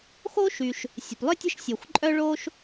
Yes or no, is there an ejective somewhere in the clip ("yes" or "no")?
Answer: yes